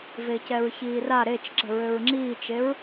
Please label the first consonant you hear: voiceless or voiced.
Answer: voiced